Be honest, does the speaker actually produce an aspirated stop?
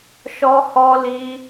no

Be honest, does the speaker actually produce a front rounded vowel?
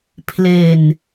no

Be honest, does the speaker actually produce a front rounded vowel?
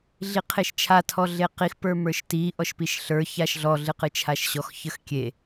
no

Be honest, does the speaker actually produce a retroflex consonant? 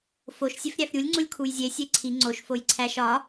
no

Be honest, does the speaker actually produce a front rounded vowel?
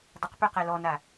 yes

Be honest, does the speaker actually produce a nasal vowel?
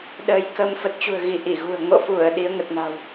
no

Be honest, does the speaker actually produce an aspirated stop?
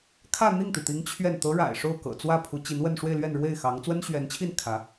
yes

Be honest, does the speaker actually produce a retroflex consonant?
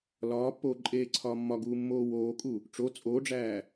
yes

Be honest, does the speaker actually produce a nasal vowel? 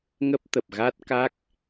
no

